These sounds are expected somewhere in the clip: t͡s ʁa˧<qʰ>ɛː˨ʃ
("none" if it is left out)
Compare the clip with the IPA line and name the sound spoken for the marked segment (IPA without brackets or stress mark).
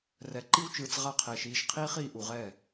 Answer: qʰ